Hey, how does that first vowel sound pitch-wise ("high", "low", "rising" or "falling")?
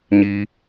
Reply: high